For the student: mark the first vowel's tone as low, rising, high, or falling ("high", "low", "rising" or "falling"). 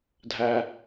low